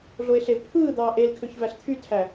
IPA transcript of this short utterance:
ɮoe̯ɬevpʰɯː d̪ɑːʔelkʰøç væɬt̪ʰytʰæ

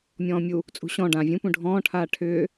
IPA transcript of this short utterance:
mʲɔ̃ːmʲu | t͡sʼṳɕɔ̃ ɖã vʲũ pũɖʱɔ̃ː ʈʰaːʈʰʏː

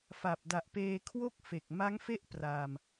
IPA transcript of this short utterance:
fa˨˩p̚ da˨˩ʔpeː˧ kʰwo˥˩k̚fe˨˩k̚ ma˦˥ŋfe˥˩ʔ praː˧m

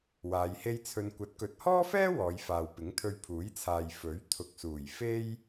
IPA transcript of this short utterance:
waː˨˧jhe˥j t͡sʰɵ˧n kʷɐ˨˥t̚kɵ˨˥t̚hɔː˥fɛː˥ wɔː˨˧jfaː˨wpɪ˨˥ŋ t̪ʰɵ˧ɥpʰuː˨˥jt͡sʰaː˨j fɵ˨˥ɥ t̪ʰʊ˨k̚suː˨˩j fe˥j

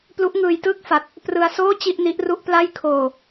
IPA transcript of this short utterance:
plu˦˥ʔŋɯː˧jtɯː˥˩k̚fa˨˩t̚ | prɯ˧a̯soː˥˩ t͡ɕi˥˩ʔni˦˥ʔru˥˩ʔpla˥˩j kʰoː˨˩

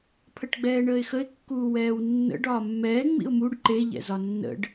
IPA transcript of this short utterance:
pʰəʈɡ͡bɛːɳəːɪ̯xəɪ̯ kːuːwɛːwnːə̰ɖ ɒːmːɛː ŋ͡mḭʊ̯muɖ ǃe ʎɛ̰zɒnːə̰ɖ

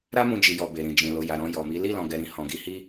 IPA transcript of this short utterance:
ɾa˦mũ˧d͡ʒi˨jɔ˨ be˨ɾĩ˨d͡ʒĩ˨ lo˨ja˨ ɾɔ̃˧jɔ˨mi˨˦ li˦˨lɔ̃˨ɡɛ˨ ɾĩ˨ hɔ̃˨ɡi˧hi˦

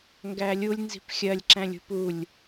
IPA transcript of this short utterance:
ŋɡælʲulʲ nzi̤pxʲɜlʲ ǁæ̃lʲṳpulʲ

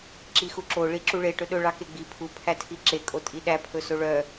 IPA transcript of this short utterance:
ǁixuǁo ɭiǁuɭe ʈɵɗɵ ɭɑkeɡ͡bi pʰu pʰætʰiǁe kʼotʼiɗæ pʰɵsoɭœ

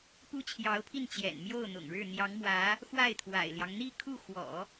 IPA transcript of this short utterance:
pu˥t͡ɕʰjɑ˧˥ʊ̯pʰi˥˩n t͡ɕjɛ̰˨˩nmjo˥˩ʊ̯n̪ʊ̰˨˩ŋɻɻ̩˥˩ n̪jɑ˧˥ŋmwä˧˥ | xwa˥˩ɪ̯t̪ʰwa̰˨˩ɪ̯ljɑ˦ŋ n̪i˥˧kʰu˥˩xwɔ̰˨˩˦

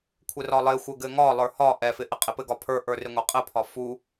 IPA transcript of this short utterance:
kʷʰɘrɒlˠɪxʷɘ ɡɘŋɒlˠə˞ hɒ ʔɛfɪ ʔɪqʼɪpɘ ɡɒpʰə˞ʔə˞ rɪŋʷɛqʼɘpʰɒ fu

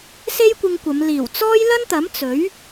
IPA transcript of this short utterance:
se˥jkʷɪ˧ŋkʷɐ˨˧m liː˨˩wt͡sɔː˥j lɐ˥nt̪ɐ˨˥m t͡sɵ˨˥ɥ

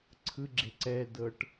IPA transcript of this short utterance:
ǀʰɯɡ͡ǁe ǀɛdɤʈ

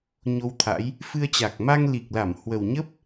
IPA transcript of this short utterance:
ɲo˧wt̪ʰa̰˧˥j | fɨ˧ə̯t͡ɕa˨˩k̚ ma˧ŋli˨˩k̚la˧˩m hwə˨˩wɲə˦˥p̚

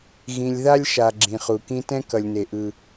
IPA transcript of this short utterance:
ɣĩ˨lʲða˦lʲʃa˨ ɡ͡ǁĩ˨χu˨ kĩ˦ tɛ̃˦kʌ˨lʲne˨ ʔɯ˦

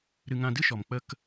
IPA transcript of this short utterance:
ɾɨ˧ŋã˧dɨ˦ʃɔ˨m k͡pə˧k

